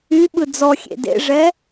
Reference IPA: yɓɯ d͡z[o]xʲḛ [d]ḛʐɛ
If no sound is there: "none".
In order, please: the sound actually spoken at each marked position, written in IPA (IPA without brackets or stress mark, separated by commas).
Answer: ɔ, d